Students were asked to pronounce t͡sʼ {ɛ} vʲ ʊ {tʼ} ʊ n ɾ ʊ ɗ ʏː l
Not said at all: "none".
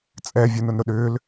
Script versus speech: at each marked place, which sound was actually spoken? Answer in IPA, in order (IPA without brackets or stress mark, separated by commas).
ɛ, n